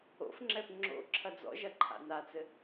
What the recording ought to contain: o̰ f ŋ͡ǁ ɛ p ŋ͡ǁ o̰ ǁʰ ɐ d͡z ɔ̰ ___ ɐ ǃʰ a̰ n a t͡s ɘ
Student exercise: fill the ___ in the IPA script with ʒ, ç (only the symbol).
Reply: ʒ